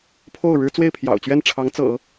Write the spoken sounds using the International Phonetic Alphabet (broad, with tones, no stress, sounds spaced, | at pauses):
pʰ o˥˩ ʊ̯ ɻ ɻ̩˥ t͡s w e˥˩ ɪ̯ pʰ j ɑ̰˨˩ ʊ̯ t͡ɕ ɥ ɛ˥˩ n ʈ͡ʂʰ ɑ˧˥ ŋ t͡s ɤ̰˨˩˦